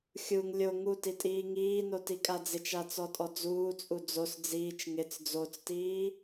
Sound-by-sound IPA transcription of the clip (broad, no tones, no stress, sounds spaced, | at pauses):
xʲ u ŋ lʲ o ŋ u t i tʼ iː ŋ iː n o t i kʼ a d͡z ɪ t͡ʃ a t͡s ɔ tʼ ɔ d͡z uː t͡sʼ u d͡z o s d͡z iː t͡ʃ ŋ ɪ t͡s d͡z o t͡s t iː